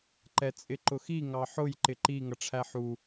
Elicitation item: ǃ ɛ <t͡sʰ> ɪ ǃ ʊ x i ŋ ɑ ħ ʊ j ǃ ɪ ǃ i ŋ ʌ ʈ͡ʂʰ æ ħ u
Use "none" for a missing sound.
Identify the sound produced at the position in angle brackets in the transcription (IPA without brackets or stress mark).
t͡sʼ